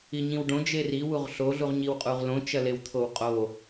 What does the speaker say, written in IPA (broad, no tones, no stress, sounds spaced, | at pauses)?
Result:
i ɲ ĩ w ɖ õ d͡ʒ e r i w u ʁ ɬ o ɮ u ʁ ɲ i w qʼ u ʁ l õ t͡ʃ ɐ l e w t̪ʰ o w qʼ o